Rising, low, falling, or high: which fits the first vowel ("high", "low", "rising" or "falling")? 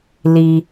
low